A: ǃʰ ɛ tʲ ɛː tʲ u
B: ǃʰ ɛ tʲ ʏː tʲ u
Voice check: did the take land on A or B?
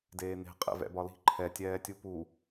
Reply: A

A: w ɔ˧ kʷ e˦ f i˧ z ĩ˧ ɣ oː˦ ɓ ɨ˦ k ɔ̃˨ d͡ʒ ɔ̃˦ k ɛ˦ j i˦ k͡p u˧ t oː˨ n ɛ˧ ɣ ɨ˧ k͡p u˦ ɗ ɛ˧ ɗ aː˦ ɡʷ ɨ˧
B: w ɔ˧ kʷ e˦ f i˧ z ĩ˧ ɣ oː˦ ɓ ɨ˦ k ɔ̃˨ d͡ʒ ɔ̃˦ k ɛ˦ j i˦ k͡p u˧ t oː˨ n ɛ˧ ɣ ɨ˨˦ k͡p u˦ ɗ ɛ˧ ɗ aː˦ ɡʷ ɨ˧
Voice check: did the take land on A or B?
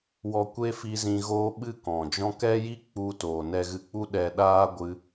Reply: A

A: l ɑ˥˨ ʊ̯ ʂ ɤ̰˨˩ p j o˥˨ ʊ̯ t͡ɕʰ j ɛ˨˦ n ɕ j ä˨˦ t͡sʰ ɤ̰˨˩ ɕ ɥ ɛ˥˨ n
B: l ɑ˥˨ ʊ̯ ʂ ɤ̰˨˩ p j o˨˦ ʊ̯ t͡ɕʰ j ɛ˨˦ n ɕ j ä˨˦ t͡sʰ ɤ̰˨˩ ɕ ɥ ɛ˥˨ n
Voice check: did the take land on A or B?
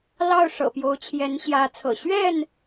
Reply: B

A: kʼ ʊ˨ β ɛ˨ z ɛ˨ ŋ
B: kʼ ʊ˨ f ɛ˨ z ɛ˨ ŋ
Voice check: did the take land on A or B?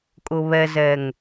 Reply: A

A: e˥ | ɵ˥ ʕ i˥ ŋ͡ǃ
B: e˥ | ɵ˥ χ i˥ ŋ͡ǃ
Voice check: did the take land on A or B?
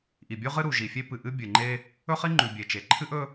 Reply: B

